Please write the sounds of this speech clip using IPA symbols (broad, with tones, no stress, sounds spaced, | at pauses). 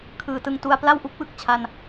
kʰ ɯː˩˦ t ɯ˧ ŋ t u˧ a̯ p l a˥˩ w ʔ u˥˩ k̚ w ɯ˨˩ k̚ t͡ɕʰ a˧ n